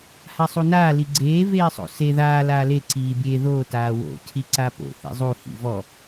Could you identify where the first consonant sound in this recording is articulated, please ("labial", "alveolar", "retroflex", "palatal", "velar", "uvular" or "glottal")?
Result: glottal